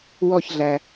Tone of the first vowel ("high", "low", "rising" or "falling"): falling